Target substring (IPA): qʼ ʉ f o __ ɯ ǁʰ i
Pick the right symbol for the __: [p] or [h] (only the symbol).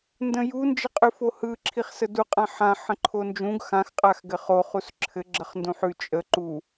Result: h